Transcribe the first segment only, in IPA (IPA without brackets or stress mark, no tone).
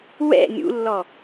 w